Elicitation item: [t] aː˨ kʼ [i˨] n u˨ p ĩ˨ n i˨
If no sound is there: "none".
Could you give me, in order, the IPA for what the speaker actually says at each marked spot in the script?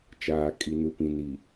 t͡ʃ, i˨

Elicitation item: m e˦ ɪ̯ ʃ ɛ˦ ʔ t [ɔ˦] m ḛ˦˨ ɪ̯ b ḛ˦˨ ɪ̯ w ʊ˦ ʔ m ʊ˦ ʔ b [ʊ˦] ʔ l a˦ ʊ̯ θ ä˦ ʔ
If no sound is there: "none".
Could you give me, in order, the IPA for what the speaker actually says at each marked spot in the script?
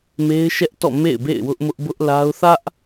ɔ̰˦˨, ʊ˦

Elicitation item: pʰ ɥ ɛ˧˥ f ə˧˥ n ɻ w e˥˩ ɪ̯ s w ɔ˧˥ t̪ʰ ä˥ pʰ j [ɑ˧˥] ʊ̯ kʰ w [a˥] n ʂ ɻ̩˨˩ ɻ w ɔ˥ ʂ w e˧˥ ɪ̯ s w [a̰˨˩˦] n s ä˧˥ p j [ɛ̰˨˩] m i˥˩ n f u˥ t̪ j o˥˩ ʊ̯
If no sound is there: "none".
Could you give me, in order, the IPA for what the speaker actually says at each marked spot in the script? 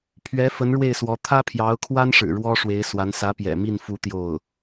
ɑ˧˥, a˥, a˧˥, ɛ̰˨˩

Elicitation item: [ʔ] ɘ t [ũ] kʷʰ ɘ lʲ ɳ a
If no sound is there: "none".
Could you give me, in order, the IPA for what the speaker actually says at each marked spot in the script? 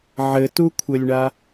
ʕ, u

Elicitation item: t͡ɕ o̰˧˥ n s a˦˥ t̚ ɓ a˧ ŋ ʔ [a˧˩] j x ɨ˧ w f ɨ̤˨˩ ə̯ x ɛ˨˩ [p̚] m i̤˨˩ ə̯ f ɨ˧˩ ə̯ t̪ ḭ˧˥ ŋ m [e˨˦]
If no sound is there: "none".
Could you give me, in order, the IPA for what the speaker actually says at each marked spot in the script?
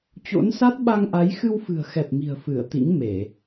a˨˦, p̚, e˧˩˨

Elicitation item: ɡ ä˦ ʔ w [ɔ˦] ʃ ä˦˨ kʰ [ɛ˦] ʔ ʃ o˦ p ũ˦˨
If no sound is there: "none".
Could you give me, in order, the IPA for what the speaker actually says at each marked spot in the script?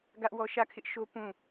ɔ˦, ɪ˦

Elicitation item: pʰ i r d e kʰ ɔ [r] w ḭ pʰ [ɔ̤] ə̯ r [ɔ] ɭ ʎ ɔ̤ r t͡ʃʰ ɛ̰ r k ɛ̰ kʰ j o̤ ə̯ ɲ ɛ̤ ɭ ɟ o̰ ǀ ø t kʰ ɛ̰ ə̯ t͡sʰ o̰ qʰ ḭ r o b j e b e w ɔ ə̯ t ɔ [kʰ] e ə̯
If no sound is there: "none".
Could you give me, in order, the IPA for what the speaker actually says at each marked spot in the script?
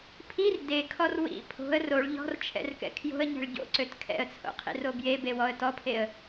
r, o̤, o, pʰ

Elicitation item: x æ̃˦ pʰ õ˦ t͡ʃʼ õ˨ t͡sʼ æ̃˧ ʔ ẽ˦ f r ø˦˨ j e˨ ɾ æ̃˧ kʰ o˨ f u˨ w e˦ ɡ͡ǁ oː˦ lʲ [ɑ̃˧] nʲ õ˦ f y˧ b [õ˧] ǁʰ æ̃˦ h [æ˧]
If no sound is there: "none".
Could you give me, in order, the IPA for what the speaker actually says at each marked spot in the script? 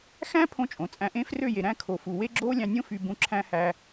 ɑ̃˧, ũ˧, æ˧

